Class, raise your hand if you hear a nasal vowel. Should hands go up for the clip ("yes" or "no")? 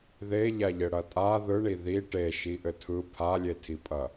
no